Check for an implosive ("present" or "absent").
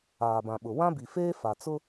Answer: present